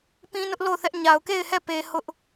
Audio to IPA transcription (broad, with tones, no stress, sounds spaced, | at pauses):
p ĩ˦ n ʊ˦ ʔ l o˦˨ ʊ̯ θ ɛ˦ ʔ ɲ a˨ ʊ̯ k e˦˨ ɪ̯ h ɛ˦˨ p e˨ h ʊ˦ ʔ